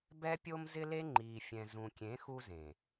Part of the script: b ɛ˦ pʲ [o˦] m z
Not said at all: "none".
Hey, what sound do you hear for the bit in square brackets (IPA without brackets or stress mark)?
o˦